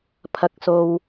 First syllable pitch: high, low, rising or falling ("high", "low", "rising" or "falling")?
high